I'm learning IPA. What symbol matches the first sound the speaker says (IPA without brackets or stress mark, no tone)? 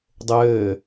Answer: dˤ